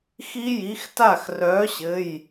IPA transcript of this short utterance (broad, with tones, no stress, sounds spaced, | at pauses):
x i˦˥ j i˨˥ x t a˥˩ x r œː˨˥ ɕ ɘ˩˧˩ j